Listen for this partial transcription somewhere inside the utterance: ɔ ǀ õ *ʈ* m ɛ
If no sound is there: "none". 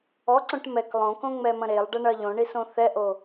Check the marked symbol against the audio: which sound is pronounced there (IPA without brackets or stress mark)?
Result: ʈ